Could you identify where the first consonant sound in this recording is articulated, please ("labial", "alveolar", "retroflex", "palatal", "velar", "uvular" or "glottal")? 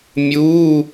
labial